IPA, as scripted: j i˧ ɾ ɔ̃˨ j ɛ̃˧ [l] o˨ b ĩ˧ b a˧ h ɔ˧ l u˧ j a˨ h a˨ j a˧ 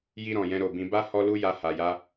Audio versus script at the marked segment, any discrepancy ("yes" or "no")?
yes